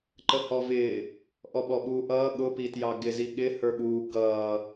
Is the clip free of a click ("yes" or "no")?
no